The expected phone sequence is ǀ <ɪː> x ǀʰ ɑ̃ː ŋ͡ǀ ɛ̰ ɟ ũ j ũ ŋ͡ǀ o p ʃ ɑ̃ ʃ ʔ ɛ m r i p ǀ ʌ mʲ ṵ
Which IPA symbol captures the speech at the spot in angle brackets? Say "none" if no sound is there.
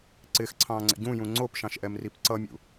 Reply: ɪː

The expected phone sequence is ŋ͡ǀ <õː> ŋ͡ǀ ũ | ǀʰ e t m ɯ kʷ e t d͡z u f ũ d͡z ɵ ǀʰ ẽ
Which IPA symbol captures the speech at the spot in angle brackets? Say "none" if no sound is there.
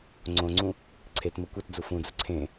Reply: õ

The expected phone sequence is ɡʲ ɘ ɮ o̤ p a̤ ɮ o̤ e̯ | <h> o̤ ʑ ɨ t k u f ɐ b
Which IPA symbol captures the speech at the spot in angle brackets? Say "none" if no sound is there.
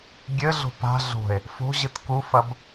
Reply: f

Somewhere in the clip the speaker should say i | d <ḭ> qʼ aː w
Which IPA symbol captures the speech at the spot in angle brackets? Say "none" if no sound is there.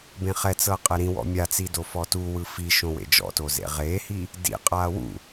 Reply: ḭ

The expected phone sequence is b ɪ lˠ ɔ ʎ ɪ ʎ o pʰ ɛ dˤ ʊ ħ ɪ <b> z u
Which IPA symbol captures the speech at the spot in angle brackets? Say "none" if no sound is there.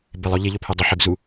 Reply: b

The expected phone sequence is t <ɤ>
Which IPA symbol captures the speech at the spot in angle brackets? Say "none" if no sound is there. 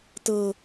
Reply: ɤ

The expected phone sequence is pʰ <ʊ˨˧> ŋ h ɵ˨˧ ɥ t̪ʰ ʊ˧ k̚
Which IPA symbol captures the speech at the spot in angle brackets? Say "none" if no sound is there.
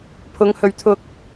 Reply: ʊ˨˧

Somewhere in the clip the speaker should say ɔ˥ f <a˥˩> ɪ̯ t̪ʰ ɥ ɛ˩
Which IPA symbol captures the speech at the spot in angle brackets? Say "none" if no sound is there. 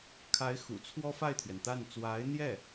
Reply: a˥˩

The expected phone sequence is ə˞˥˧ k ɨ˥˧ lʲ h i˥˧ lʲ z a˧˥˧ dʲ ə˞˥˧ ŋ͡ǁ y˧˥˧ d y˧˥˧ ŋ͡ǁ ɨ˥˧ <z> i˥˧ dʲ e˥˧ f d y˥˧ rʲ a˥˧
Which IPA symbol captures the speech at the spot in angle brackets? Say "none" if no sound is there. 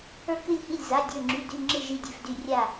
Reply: ʒ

